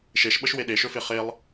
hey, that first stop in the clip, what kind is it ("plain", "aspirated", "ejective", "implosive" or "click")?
implosive